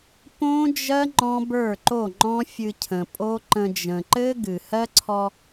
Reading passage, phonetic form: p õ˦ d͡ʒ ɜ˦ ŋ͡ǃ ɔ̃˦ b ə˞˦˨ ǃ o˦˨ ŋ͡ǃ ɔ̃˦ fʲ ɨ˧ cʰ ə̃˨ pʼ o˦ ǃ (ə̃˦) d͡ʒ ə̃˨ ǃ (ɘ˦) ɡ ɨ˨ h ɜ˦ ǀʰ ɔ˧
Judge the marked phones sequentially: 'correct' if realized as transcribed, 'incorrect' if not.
incorrect: ə̃˧, correct

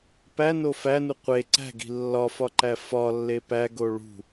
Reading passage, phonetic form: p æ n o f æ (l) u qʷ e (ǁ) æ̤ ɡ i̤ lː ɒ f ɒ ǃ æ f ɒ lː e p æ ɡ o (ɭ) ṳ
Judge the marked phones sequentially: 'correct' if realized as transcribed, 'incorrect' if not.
incorrect: n, incorrect: ǀ, correct

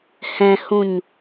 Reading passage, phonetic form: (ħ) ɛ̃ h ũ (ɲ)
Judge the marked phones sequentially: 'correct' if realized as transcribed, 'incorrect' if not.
incorrect: h, correct

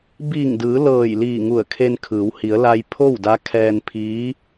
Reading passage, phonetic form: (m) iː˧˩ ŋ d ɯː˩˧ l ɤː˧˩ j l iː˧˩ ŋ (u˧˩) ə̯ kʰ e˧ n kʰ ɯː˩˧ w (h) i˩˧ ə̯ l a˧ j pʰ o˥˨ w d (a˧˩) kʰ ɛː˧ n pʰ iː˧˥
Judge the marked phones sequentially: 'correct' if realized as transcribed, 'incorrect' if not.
incorrect: b, correct, correct, incorrect: a˧˥

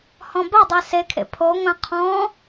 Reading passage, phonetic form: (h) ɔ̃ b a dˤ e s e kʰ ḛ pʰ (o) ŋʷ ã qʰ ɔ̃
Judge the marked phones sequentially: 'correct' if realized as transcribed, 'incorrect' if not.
correct, correct

